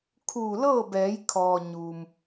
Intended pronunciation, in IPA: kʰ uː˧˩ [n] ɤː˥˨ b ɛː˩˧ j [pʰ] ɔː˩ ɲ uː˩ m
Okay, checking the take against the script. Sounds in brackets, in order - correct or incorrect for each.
incorrect: l, incorrect: kʰ

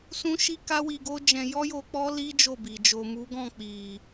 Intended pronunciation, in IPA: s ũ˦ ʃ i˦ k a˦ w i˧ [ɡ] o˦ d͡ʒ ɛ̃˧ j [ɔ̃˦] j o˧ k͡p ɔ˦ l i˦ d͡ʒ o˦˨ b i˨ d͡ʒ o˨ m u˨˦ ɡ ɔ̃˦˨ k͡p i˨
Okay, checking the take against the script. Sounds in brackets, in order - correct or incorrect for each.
correct, incorrect: ɔ˦

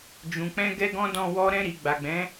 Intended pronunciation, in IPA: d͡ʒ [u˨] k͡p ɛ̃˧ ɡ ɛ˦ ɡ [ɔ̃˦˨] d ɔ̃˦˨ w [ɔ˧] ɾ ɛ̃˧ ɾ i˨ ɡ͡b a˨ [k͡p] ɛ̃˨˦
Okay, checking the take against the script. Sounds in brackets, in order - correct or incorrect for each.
incorrect: ũ˨, incorrect: ɔ̃˦, correct, incorrect: ɡ͡b

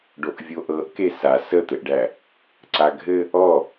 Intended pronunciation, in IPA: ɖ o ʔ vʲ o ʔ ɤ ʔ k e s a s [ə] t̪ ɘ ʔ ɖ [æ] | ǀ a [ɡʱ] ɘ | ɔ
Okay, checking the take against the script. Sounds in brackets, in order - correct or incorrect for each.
correct, correct, correct

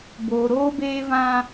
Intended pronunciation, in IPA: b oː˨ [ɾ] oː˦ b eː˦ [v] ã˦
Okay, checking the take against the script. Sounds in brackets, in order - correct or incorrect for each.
correct, correct

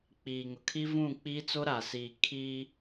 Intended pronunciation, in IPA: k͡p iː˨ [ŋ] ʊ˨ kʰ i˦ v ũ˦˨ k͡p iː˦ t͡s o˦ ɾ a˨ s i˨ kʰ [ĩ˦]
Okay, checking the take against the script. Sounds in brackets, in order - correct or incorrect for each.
correct, incorrect: i˦

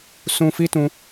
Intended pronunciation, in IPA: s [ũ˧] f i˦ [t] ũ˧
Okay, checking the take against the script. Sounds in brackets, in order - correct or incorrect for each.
correct, correct

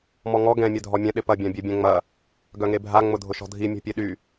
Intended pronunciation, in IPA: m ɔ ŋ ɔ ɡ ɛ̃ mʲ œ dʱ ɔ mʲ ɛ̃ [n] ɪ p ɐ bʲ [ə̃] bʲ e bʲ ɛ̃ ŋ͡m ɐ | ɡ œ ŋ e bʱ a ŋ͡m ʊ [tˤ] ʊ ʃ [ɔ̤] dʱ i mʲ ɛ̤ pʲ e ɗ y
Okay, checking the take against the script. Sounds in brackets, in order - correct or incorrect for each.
incorrect: ɗ, incorrect: ã, incorrect: dʱ, correct

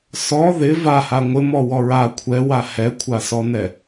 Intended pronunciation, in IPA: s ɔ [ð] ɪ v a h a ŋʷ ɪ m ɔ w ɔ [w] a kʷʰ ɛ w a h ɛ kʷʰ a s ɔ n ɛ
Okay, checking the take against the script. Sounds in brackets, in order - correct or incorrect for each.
correct, incorrect: ɹ

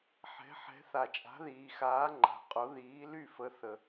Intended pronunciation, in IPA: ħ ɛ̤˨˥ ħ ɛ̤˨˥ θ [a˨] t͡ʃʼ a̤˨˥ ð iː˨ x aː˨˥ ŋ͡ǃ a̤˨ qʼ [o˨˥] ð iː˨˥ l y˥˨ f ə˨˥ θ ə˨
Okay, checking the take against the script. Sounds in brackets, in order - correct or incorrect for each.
correct, correct

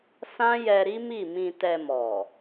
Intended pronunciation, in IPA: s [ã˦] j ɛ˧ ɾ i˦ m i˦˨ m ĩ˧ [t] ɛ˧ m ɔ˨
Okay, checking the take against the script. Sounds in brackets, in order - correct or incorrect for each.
correct, correct

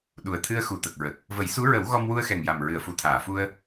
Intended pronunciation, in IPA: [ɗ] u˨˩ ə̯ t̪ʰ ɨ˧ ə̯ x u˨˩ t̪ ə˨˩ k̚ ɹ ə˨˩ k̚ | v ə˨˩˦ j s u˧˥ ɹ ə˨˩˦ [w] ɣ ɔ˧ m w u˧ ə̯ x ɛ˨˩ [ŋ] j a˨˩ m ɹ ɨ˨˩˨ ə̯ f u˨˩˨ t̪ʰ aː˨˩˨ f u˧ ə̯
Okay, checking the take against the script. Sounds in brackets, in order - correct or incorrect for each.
correct, correct, correct

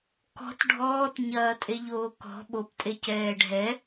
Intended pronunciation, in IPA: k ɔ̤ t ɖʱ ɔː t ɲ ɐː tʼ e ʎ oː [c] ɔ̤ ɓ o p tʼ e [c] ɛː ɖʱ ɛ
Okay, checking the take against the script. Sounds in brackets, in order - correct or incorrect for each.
incorrect: k, correct

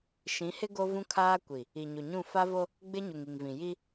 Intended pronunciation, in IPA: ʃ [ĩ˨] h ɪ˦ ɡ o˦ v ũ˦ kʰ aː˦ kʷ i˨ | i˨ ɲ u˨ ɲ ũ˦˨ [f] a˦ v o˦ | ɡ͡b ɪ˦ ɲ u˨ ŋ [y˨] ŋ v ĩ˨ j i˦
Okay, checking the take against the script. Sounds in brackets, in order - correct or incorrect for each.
incorrect: ĩ˨˦, correct, incorrect: i˨

